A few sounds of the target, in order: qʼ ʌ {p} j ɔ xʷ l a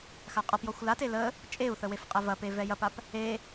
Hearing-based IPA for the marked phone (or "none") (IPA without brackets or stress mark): p